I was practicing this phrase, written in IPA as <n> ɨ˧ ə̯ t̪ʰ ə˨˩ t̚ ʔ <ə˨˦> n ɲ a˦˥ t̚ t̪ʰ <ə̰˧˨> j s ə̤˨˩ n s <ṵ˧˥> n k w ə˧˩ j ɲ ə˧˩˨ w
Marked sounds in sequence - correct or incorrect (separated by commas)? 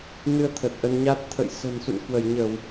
correct, incorrect, correct, incorrect